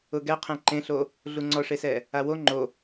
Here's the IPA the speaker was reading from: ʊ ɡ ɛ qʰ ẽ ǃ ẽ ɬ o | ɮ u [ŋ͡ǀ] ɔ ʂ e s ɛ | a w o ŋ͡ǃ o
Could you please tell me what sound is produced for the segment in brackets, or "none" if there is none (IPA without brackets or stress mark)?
ŋ͡ǀ